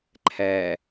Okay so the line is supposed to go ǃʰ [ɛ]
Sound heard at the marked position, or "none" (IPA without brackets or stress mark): ɛ